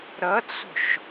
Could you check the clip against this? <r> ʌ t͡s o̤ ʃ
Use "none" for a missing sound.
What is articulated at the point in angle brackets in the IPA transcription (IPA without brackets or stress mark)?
ɾ